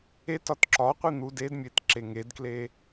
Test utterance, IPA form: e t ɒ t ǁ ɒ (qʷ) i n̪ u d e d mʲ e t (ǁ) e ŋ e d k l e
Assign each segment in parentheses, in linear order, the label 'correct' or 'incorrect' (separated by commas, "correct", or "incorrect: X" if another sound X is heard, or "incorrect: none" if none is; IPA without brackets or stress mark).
correct, correct